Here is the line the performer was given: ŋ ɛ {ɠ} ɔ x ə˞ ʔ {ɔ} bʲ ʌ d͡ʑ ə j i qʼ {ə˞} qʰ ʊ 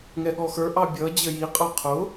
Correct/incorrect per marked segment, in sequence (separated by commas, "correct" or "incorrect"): correct, incorrect, correct